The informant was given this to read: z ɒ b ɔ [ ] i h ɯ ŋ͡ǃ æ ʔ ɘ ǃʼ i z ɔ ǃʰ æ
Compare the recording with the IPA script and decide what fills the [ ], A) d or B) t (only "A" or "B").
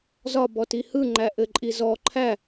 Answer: B